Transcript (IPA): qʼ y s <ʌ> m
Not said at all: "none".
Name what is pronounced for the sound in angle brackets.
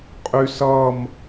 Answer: ʌ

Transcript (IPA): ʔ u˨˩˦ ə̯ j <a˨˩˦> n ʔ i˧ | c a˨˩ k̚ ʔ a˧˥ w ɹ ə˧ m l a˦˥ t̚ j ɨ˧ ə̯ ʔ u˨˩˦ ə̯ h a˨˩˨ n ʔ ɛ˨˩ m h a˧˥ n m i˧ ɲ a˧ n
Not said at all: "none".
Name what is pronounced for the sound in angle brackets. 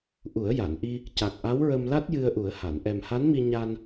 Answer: a˨˩˨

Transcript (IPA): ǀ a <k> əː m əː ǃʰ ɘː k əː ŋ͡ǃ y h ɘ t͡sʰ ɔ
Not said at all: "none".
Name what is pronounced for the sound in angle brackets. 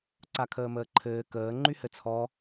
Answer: kʰ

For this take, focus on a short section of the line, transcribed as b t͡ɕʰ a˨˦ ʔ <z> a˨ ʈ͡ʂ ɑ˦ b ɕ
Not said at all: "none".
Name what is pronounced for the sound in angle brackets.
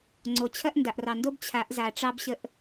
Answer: z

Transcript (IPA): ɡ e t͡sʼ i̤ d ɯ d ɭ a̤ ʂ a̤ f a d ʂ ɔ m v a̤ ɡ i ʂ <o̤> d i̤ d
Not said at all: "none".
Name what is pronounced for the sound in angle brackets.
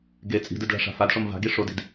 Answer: o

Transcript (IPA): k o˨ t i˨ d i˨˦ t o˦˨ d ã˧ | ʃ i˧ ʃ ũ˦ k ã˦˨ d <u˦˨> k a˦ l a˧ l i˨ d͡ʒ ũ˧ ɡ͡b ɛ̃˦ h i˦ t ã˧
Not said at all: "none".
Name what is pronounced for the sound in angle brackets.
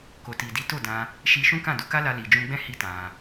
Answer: u˨˦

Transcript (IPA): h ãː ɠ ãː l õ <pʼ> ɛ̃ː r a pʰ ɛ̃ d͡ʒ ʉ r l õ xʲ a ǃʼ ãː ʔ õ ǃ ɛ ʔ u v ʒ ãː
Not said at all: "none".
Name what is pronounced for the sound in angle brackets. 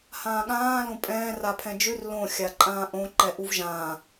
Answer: pʼ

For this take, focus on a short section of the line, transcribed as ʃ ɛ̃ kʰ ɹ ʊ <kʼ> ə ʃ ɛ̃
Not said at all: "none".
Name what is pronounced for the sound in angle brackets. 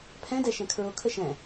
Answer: kʰ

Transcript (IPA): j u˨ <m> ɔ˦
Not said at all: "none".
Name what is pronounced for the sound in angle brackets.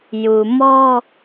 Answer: m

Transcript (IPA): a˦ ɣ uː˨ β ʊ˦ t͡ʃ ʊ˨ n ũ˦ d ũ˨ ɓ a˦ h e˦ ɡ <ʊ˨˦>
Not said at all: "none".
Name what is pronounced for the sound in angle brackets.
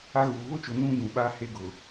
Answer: ʊ˨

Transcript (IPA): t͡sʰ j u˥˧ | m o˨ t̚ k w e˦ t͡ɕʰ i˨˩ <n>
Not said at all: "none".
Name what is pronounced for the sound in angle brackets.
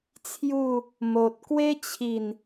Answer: n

